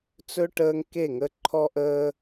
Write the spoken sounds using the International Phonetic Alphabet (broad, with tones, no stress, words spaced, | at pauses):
t͡sɵ˦ ʈəː˦ŋke˦˨ŋə˦ ǃʰɔ˦ʔəː˦